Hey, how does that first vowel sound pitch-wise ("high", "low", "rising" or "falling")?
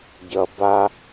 low